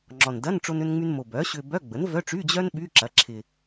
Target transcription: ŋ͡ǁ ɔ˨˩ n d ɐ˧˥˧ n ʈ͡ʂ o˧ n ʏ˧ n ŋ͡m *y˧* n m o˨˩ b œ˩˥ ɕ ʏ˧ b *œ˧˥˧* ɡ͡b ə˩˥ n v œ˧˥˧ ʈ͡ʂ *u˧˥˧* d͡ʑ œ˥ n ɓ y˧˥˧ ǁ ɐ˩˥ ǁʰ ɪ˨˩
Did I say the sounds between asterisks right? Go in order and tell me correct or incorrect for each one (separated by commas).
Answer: correct, correct, incorrect